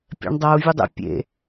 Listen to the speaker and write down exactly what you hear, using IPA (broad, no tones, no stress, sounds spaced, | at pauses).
pʲ ɛ̰ ɳ dˤ ʌ u̯ vʲ ɵ dˤ ḛ pʲ ḛ